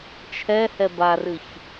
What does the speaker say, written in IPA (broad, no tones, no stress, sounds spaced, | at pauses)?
t͡ʃʰ ɛ h ɛ b a r ɨ ç